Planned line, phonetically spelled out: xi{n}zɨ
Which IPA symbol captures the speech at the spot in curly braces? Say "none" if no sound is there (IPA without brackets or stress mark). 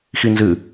n